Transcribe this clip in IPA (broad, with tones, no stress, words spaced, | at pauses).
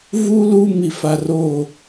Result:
vu˦lu˦ mi˦fa˦ ro˦˨